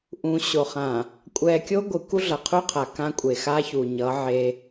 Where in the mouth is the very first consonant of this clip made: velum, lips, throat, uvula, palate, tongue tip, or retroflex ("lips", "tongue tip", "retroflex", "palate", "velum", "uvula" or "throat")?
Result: throat